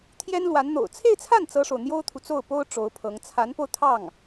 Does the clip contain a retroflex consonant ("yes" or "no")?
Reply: yes